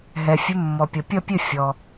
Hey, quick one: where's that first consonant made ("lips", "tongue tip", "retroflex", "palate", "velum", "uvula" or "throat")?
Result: throat